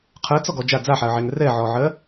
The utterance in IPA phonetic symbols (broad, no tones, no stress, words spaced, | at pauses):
qʰɜt͡sɔɡɔ d͡ʒa d͡zaħaə̯ʕɛŋ rɛʕɔʕɜ